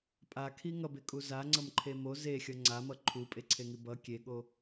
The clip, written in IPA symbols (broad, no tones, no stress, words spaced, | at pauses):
pʼakʰi ŋʌbekʼu zaŋ͡ǀʌmǃʰe mo zexʲʌ ŋ͡ǀamʌ ǃʰupʼeǀʰeŋi bʌ kʲeɠo